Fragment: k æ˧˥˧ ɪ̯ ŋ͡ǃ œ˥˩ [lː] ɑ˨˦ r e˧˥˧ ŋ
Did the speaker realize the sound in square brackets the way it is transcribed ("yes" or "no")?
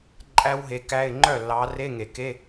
yes